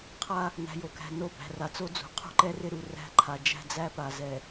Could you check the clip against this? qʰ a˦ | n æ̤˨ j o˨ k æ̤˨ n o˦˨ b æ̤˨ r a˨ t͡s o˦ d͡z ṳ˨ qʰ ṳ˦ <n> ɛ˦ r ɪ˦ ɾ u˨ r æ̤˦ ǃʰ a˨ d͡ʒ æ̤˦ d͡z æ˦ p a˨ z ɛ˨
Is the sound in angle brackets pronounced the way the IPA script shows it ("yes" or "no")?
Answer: no